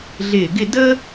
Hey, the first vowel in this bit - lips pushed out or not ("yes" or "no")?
no